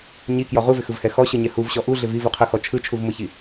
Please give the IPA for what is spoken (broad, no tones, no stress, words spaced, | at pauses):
ɲikjɔ ʁuvɪxɯvhɛ xɔɕɯɲɛ huvɕɔ ʔuɮɪv ivuqʰɯxɔ t͡ʃʰɯt͡ʃʰuvmɯçi